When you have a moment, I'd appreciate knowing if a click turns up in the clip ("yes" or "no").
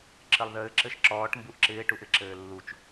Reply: yes